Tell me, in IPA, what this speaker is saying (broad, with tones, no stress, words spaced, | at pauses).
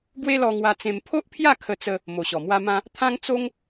ɡwe˦lɔ˧ŋwa˧t͡sẽ˧m pʰo˦ʔpʰja˥˧ kʰə˧t͡sə˧ | mo˨˩ɕɔ˨˩mwa˦mã˦ | t̪ʰã˦ŋt͡so˦ŋ